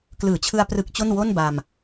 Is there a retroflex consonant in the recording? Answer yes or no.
no